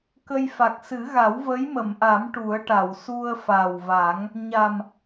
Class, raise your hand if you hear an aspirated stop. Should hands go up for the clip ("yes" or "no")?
no